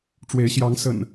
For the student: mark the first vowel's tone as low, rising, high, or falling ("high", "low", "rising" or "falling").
rising